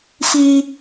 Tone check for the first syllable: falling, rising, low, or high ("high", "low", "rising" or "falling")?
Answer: high